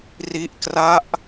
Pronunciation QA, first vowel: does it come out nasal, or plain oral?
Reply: oral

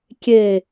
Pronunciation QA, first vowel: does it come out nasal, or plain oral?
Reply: oral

